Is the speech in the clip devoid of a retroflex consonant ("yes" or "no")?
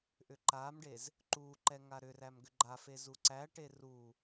no